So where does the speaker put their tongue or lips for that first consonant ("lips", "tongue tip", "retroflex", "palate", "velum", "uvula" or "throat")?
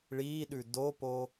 retroflex